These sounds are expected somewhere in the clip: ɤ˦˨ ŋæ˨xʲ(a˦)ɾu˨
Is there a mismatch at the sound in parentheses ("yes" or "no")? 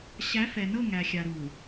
yes